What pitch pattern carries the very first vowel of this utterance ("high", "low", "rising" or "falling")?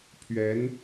rising